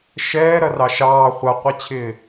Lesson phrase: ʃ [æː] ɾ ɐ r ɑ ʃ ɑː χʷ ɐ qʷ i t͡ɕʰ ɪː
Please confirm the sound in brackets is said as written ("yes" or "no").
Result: no